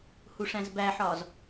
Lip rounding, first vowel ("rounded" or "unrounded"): rounded